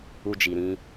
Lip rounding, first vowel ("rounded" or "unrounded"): rounded